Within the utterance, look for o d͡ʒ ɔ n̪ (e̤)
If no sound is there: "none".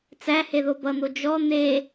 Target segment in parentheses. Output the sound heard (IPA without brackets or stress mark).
e